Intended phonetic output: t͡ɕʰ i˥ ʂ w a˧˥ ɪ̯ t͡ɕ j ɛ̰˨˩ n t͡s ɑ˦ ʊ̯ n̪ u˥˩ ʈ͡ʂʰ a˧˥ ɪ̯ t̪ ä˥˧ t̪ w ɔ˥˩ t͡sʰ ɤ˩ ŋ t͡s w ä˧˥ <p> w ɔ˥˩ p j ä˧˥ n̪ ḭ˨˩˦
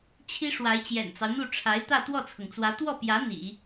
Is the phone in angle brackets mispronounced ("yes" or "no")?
yes